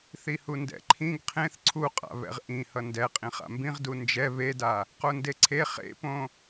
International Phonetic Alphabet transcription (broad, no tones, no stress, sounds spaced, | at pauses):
θ i h u n d ɛ̰ ǃʰ ĩ ɡ qʰ ẽ θ ǀʰ u qʼ a̰ β ɛ̰ ʁ ʔ ĩ h ʌ n d ɛ qʼ ĩ χ a̰ m b ĩ ʁ d u n d͡ʒ ɛ β e d a | q o n d e ǀʰ e χ ḛ p õ